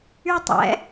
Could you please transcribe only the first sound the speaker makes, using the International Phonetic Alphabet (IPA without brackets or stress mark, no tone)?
y